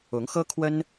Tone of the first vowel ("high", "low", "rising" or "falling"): rising